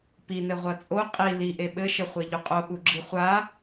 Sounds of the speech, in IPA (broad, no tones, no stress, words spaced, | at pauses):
pinɘ ʁʷɐt͡sʼo qʼi liʔe ɓɘʃɘ χʷeʎuqʼo ɠuɡ͡ǁiχʷa